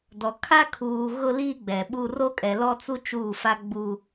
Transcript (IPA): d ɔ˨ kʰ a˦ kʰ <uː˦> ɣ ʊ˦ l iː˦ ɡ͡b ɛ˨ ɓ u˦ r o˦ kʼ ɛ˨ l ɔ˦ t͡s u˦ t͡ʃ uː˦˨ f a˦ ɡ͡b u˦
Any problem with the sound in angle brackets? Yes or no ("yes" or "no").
yes